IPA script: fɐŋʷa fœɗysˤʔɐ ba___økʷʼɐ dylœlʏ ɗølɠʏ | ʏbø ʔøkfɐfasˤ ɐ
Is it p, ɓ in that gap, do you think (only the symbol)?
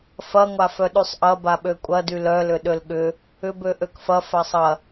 ɓ